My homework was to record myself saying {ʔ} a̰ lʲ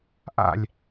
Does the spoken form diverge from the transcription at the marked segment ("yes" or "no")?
no